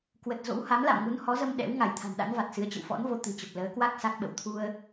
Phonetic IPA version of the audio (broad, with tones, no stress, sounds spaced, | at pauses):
k w ə˨˩ t̚ z o̰˧˥ w h a˨˦ m l a̰˧˨ m ŋ u˨˦ n h ɔ˨˦ z ə˧ m ɗ ɛ̰˧˥ w ŋ a˧˩ j t̪ʰ a̤˨˩ n ɗ a̰˧˥ n v a˨˩ t̚ s ɨ˨˦ ə̯ t͡ɕ ə̰˧˨ w f ɔ̰˧˥ n v o˧ t̪ ɨ̤˨˩ t͡ɕ ə˨˩ p̚ l əː˨˦ k w a˦˥ k̚ s a˦˥ k̚ ɓ ə̰˧˨ w t̪ʰ u˧ ə̯